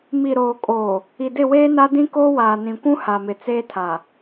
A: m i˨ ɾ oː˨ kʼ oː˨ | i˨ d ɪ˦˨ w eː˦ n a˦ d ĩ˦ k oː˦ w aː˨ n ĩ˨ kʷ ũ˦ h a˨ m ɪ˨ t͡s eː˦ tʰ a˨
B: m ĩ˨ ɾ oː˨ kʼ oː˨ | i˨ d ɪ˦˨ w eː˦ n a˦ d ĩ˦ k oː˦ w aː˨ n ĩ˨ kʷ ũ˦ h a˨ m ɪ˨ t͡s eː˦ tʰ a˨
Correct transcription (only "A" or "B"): A